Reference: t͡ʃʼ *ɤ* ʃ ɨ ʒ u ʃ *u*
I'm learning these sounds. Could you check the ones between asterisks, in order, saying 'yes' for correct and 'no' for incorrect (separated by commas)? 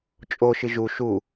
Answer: no, yes